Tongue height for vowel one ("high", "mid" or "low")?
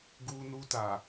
high